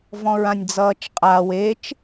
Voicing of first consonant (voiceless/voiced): voiced